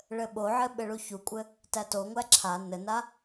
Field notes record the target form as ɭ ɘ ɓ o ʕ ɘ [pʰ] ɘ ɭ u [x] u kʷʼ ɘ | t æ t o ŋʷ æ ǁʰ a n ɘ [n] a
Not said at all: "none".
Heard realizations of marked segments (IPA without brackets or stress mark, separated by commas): ɓ, ç, n